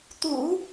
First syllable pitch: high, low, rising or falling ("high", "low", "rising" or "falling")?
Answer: low